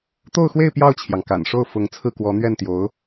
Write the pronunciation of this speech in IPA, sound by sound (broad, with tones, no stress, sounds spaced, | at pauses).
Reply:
t̪ o˥˧ ʊ̯ x w e˥˧ ɪ̯ p j ɑ˥˩ ʊ̯ t͡ɕʰ j ɑ˩ ŋ k a̰˨˩ n ʂ o˥˩ ʊ̯ f ʊ˧˥ ŋ t͡sʰ ɹ̩˥˩ k w ɔ˧˥ n̪ ɥ ɛ˥˩ n t̪ j o˧˥ ʊ̯